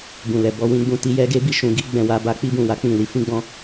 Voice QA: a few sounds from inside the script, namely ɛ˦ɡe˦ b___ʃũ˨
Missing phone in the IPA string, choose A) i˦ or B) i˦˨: B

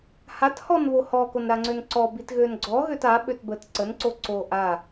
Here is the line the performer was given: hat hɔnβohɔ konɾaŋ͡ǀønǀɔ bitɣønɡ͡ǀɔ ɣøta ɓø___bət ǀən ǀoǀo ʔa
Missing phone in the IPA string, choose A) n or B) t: B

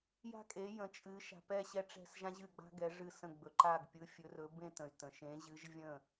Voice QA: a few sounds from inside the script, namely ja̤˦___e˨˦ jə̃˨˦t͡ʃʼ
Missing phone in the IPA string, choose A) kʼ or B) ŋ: A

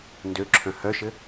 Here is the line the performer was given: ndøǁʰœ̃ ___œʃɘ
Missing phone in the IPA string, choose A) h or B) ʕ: A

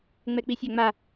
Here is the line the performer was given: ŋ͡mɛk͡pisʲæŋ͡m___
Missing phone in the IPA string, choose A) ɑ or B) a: B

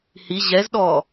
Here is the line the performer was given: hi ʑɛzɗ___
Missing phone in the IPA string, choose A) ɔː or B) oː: A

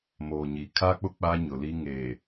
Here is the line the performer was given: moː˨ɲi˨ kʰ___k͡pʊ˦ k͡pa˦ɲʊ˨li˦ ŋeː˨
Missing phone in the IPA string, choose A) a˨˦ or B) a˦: B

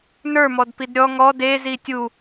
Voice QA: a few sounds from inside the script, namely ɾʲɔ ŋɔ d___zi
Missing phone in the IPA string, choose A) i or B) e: B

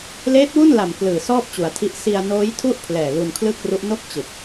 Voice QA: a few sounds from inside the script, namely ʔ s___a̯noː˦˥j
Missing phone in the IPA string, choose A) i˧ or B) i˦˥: A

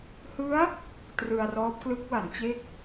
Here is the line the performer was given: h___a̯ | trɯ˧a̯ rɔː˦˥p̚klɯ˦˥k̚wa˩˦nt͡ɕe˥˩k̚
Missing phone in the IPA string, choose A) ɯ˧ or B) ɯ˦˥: B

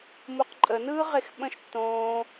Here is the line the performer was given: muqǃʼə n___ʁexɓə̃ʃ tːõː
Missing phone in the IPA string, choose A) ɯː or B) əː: A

